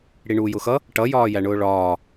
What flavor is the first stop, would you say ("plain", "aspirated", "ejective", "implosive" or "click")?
plain